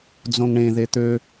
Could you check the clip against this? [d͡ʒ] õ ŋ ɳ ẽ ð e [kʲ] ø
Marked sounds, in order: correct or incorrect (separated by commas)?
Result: incorrect, incorrect